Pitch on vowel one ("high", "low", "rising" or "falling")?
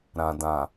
low